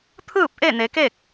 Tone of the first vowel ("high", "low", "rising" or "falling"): falling